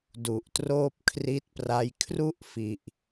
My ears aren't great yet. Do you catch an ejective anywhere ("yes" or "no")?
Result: no